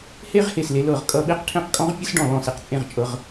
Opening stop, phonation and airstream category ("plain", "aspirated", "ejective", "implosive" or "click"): ejective